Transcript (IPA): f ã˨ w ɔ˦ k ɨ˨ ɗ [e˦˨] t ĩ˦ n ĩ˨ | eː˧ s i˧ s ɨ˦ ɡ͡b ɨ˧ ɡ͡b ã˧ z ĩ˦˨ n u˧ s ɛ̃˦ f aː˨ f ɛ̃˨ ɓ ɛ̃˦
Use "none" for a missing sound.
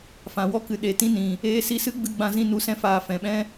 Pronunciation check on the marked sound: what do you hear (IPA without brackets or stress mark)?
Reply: e˨˦